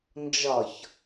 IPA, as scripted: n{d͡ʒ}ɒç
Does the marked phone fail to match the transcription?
no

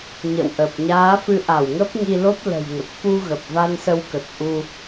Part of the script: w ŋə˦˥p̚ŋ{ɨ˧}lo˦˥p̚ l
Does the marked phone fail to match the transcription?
yes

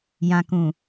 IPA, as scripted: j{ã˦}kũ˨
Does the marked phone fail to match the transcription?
yes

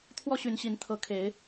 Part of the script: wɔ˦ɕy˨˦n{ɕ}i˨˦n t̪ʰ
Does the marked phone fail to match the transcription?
no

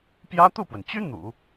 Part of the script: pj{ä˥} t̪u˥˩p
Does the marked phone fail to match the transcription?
no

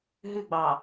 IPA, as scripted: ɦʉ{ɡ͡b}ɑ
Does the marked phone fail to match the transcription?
no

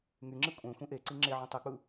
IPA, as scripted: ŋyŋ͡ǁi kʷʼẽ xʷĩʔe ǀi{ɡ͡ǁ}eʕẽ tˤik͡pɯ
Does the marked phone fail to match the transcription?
yes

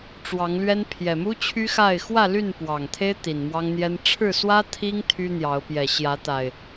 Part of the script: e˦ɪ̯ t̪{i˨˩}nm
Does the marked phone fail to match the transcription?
no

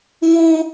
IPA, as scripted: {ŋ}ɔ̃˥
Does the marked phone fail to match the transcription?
no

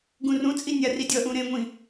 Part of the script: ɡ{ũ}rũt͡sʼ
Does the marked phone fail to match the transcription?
no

